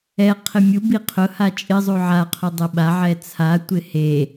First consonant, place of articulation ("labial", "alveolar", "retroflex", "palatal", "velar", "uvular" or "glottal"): uvular